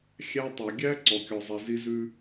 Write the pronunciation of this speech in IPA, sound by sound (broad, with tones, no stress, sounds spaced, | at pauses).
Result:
xʲ æ˦ tˤ ʉ˨ ɡʲ æ˦ ǀ ɔ˨ kʲ ɔ˨ zˤ i˨ z i˦ z ʉ˦